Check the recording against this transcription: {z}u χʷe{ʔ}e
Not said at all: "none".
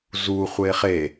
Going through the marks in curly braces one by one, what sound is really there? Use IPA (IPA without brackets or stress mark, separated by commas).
z, χ